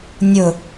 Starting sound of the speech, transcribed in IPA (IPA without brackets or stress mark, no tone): nʲ